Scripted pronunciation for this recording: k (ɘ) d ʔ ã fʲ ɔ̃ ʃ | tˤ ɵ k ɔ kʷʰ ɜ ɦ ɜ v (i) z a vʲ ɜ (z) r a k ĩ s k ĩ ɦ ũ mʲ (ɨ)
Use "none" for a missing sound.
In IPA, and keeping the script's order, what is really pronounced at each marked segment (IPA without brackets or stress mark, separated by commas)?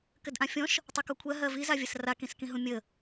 ɘ, i, s, ə